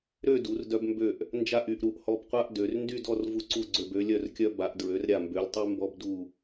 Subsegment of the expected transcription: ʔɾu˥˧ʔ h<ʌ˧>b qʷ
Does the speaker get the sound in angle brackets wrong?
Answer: yes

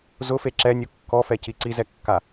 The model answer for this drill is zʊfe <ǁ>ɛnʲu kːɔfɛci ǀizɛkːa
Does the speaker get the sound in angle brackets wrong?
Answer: no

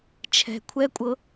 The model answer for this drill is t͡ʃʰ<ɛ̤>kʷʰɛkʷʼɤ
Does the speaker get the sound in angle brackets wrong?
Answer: no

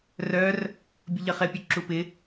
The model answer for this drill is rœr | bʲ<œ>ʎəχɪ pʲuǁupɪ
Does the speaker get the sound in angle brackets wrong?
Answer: yes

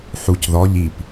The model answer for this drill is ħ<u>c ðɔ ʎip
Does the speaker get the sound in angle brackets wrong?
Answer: no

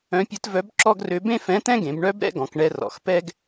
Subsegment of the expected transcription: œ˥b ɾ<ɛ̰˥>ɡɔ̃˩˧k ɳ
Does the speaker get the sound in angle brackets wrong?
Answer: no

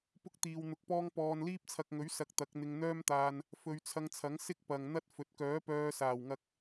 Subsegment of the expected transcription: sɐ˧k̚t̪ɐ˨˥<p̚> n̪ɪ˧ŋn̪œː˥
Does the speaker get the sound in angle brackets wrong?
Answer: yes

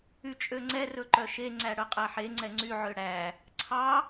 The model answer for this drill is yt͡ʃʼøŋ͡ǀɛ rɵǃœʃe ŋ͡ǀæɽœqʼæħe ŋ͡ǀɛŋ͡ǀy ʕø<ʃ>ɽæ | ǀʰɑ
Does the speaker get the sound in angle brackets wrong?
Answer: yes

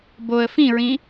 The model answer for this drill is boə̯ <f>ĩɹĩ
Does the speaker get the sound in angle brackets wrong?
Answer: no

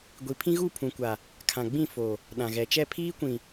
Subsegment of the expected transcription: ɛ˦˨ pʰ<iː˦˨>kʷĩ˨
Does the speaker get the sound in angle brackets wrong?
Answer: yes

